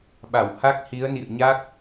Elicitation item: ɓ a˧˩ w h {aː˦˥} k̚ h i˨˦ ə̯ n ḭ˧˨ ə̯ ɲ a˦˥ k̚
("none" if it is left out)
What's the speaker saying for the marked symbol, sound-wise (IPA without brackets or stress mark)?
a˦˥